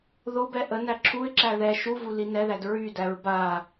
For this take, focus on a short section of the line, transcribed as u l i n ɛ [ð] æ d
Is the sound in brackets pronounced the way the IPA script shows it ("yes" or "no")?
yes